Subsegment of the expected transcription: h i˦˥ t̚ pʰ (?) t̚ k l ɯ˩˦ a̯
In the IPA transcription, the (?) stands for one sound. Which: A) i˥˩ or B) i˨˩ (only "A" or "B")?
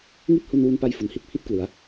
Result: A